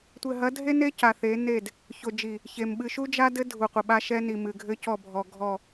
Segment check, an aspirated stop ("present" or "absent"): absent